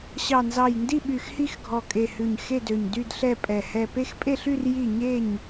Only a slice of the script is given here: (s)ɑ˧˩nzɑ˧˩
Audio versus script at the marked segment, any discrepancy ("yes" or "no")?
yes